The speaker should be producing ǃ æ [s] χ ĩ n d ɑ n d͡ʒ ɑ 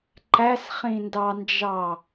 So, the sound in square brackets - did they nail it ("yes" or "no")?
yes